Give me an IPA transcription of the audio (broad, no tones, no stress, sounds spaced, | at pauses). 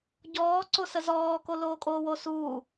ɟ ɔː ǀ o s ə z ɔː k o l oː kʼ oː w o s uː